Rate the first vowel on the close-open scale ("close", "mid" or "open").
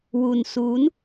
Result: close